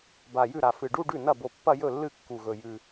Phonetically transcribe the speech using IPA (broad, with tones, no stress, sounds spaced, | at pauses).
b a˨˩ j ʉ˥˩ ɾ a˨˩ f ɨ˨˩ ɖ u˥˧ ɖ ʉ˥˩ n ɐ˥˩ b o˨˩ pː ɐ˥˧ j ɵ˥˩ lː ɨ˥˩ kː u˨˩ ɣ ɵ˨˩ j ʉ˨˩